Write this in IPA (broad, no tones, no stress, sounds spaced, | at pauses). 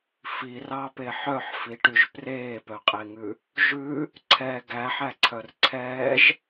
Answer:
f i r ɑ p e ħ œ ħ f i ʈ y ʒ p r eː p œ qʼ e ŋ ʉ | ʒ ʉ | ǀʰ ɛ ɡ æ ħ æ ǀʰ œ r ǀʰ ɛː ʒ